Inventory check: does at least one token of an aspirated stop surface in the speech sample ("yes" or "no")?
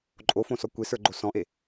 no